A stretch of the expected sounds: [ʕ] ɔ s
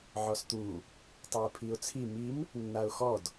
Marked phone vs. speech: correct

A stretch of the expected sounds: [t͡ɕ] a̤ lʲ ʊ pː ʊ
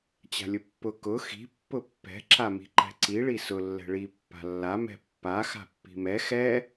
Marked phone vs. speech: correct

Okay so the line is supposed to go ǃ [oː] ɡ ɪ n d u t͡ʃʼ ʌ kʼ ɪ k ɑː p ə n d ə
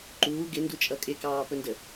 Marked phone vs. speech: incorrect: uː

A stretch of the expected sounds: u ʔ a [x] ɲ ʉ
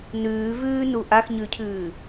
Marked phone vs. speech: correct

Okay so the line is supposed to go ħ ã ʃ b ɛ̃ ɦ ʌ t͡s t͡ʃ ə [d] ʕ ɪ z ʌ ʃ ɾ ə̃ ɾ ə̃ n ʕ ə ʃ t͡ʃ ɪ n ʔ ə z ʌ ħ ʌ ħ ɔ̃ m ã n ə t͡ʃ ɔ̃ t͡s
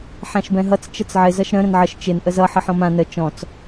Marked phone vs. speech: incorrect: t͡s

